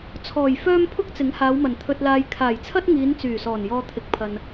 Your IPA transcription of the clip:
t͡sʰɔː˨˩j fœː˥m pʰʊ˥k̚t͡sɪ˨˥ŋ haː˨˧wmɐ˨˩n t̪ʰɵ˧t̚laː˧j kʰaː˨˩jt͡sʰɐ˥t̚ŋiː˨˧n t͡syː˨˩sɔː˨˩n jɔː˧t̪ʰɪ˨˥k̚pʰɐ˨n

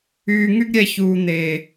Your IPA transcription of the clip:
yː˨ŋy˦ɡ ɾʲɛ˨çuː˨ n̪eː˨

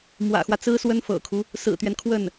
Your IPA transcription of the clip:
mwä̰˨˩xwä˦t͡sɹ̩˥swə˥n fɤ̰˨˩kʰu˦ | sɹ̩˨˩t̪ɥɛ˦nkʰwə˥˩n

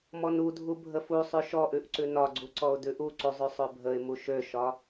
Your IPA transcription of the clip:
mɔnudʱu bʱəfu sˤʉʃɔʔʉʔǀʉ nɒɡ͡ǀuǀɔʊ̯ dʉʔuǀuzˤʉ sˤøbʱəɪ̯mu ʃøʃɒ

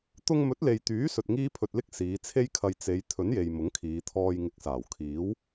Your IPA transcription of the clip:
t̪ʊ˧ŋmɵ˨˥t̚le˨jt̪yː˨˥ sɵ˧t̚ŋiː˥pʰɵ˧t̚lɪ˥k̚ siː˨˧t͡sʰe˥jkʰɐ˧j t͡se˨˧j t̪ʰɵ˨˥nje˨j mʊ˨˥ŋkʰiː˨˧ t̪ʰɔː˧j ŋɪ˨˥k̚saː˨˩w kʰiː˨˥w

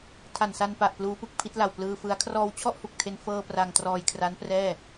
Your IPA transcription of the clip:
tʰa˨˩nsa˧n pa˨˩ʔ pluː˦˥pɯ˨˩k̚ pʰi˦˥t̚la˨˩w plɯː˧fɯ˦˥a̯ kʰrɔː˧wt͡ɕʰɔ˥˩ʔhu˨˩k̚tʰe˧n fɤː˧ pra˧ŋtrɔː˧jkʰra˦˥n prɛː˥˩

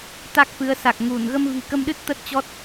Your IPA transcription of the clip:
t̪a˦˥k̚fɨ˨˦ə̯ sa˨˩k̚ ŋu˧˩n ɣə˧mvi̤˨˩kə˧mɗɨ˦˥t̚ t̪ə˦˥t̚t͡ɕɔ˦˥t̚

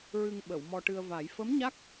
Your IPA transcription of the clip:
ɹɨ˧ŋɓə˨˩˨w mɔ˧ʈɨ˧ə̯va˨˩˦j fə˧˥mɲa˦˥k̚

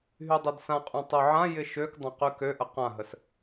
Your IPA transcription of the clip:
ɦydˤødsãqʼũ tˤøʕãjɪ ʃøk dˤãqykøʔə qãɦəs

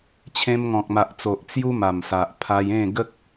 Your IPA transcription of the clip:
t͡ɕʰẽ˧mŋɔ̃˨k̚ma˨ʔt͡so˨ʔ t͡sju˦ma˨˩msa˨ʔ pʰa˧jẽ˥˧ɡə˦k̚

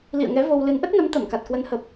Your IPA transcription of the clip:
lḭ˧˨ə̯ŋɛ˨˦ vo˧wlɨ˨˦n ʔə˦˥t̚nə˨˦mt̪ə˧˩mka˨˩t̚ kwə˨˦nhə˨˩p̚

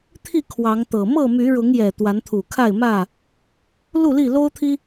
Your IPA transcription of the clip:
t̪ʰi˥˨ kʰwɑ˨˦ŋt̪ɤ˨˩ mɤ˥˨my˨˦ ɻʊ˨˦ŋjɛ˨˩ t̪wa˨˦nt̪ʰu˨˩kʰa˥˨ɪ̯mä˥˨ | lu˥˨li˥˨lo˦ʊ̯t̪ʰi˦

